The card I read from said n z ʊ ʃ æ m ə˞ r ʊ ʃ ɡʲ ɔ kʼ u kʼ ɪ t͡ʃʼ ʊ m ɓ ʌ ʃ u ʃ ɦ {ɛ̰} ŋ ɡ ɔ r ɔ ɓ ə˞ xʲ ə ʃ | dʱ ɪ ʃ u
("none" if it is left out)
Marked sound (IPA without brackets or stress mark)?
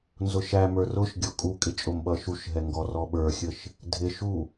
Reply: ɛ